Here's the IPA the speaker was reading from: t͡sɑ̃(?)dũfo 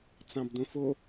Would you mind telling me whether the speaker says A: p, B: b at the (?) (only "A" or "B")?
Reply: B